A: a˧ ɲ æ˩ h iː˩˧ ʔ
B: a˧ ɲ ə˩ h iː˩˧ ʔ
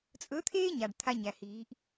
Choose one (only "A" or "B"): A